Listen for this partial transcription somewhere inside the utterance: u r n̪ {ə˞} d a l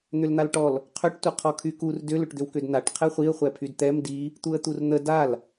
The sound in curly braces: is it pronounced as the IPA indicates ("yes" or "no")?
no